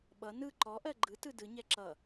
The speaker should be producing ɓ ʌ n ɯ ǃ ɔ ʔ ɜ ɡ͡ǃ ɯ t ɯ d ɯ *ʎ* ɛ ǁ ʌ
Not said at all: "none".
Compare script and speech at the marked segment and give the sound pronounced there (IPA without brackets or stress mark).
ɲ